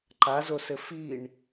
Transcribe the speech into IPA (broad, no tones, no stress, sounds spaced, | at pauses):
ǃ a z o s ɘ f i ɳ